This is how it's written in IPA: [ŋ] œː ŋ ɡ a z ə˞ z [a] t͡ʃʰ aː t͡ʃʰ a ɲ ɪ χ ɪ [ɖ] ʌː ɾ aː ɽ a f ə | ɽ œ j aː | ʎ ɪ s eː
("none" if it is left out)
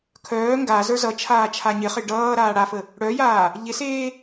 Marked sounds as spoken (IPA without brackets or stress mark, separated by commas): kʰ, ʌ, ɖ